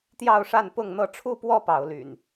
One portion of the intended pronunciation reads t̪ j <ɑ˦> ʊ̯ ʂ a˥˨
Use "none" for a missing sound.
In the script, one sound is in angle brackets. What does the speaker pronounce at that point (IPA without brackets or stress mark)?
ɑ˥˨